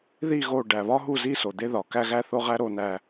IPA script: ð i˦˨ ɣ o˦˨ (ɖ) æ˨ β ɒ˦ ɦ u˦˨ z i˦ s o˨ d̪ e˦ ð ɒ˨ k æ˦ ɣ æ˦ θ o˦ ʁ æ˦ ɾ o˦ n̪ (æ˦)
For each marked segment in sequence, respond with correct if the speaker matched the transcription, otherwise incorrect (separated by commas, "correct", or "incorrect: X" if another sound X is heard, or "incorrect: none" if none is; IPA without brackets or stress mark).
correct, correct